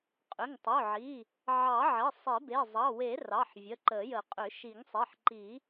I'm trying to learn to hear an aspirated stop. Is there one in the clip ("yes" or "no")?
no